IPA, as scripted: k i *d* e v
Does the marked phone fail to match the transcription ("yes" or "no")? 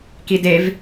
no